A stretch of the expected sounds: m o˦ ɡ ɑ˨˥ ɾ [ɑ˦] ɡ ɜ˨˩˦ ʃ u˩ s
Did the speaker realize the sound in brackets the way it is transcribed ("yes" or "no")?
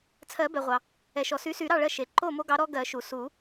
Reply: no